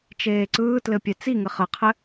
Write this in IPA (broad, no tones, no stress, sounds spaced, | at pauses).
t͡ʃ eː ǀ ɯː t l ɘ pʲ ɛ t͡s i ŋ ɘ χ ɘ qʰ ɘ